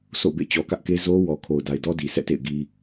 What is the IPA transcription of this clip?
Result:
sʰ o̰˦˨ b ḛ˦˨ t͡ɕ ɔ˨ k ä˦ ʔ k e˦ z o˦ w ɔ˨ kʰ o˨ ʊ̯ d a˨ ɪ̯ d ɔ˦ d i˨ sʰ ɛ̰˦˨ t ḛ˦˨ ɪ̯ ɡ i˦

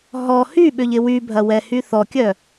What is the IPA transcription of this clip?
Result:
ɦ ɔ h y ɓ ʏ ʎ ɪ w y bʱ ɐ w ɛ h y θ ɔ kʲ œ

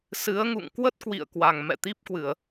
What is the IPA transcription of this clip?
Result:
s ɨ˨˦ ə̯ ŋ ṵ˧˨ ŋ k w ə˦˥ t̚ k w ḭ˧˨ ə̯ k w a˨˩ ŋ m ɛ̰˧˨ t̪ i˦˥ p̚ k w ɨ˧˩˨ ə̯

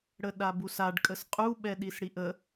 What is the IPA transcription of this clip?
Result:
ɽ ə ɗ a b u s a ɖ kʼ ə s qʼ u ɓ ɛ ɗ i s ɽ i ʔ ə

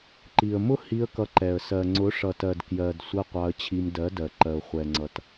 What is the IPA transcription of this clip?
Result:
ǃ i˨ ə̯ m ʊ˦ h i˧ ə̯ k ʌ˧ ǃ ɛ˨ ə̯ s ɜ˨ ŋ͡ǀ ʊ˨˦ ʂ ʌ˨ t ɜ˨ d k j ɜ˨ d sʷ ɜ˦ qʷ ɑ˧ ə̯ t͡ɕʰ i˧ m d ɜ˨˦ d ɜ˨ ǃ ɜ˨ ʊ̯ χʷ ɛ˨ ŋ͡ǀ ʌ˨ t

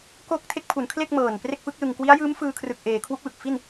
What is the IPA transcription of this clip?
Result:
k o˦˥ k̚ tʰ e˦˥ k̚ pʰ u˩˦ n kʰ l e˥˩ k̚ m ɤː˨˩ n p r e˥˩ k̚ f ɯ˦˥ k̚ l ɯ˧ ŋ k w i˦˥ a̯ j ɯː˦˥ m f ɯː˧ kʰ r ɯ˨˩ k̚ ʔ eː˩˦ kʰ w u˦˥ k̚ w ɯ˨˩ k̚ f i˥˩ n

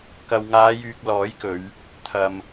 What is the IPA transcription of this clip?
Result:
k ɐ˨ w ŋ aː˨˧ j yː˨ k̚ l ɔː˨˥ j k ɵ˨˧ ɥ | t̪ʰ ɐ˨ m

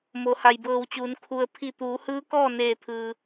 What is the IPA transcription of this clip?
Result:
m o˩˧ h a˩ j b ɤː˧˩ w t͡ɕ uː˩˧ n kʰ u˩ ə̯ pʰ i˧˩ t̪ uː˩˧ h ɯː˧˥ k ɔː˥˨ n eː˧˩ t̪ʰ ɯː˩

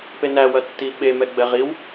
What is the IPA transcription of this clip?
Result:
p e n æ w ɐ tː i ɓ e m ɛ ɡ͡b ɛ ʁ i w

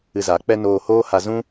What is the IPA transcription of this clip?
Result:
ɨ˧ z a˨˦ k͡p ɛ˦ n oː˧ h oː˦ h a˧ z ũ˦

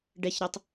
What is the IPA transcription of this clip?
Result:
ɖ ɛ ç ɾ ʌ tˤ

